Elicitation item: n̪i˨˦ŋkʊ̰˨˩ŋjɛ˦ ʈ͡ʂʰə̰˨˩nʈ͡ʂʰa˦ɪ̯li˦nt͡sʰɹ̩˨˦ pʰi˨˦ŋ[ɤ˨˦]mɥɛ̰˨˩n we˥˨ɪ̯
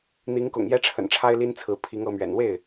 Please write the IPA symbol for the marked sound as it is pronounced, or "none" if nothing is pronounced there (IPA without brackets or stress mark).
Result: ɤ˨˦